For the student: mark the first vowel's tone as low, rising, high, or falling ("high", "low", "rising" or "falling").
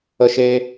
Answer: high